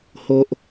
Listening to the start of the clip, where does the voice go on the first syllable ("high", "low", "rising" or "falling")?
high